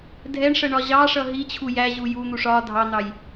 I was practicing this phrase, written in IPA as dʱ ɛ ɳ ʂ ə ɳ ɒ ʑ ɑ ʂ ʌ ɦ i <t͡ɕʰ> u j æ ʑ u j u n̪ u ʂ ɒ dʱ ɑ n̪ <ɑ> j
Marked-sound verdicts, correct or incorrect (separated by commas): correct, correct